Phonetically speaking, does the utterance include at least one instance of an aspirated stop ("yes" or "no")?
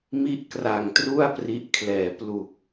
yes